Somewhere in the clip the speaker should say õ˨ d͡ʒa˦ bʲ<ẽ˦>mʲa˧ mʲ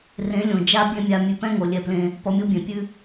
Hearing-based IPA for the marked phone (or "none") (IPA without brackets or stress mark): ẽ˦